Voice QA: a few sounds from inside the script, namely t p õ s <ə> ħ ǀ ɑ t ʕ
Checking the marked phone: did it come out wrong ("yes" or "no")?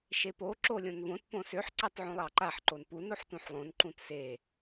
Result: yes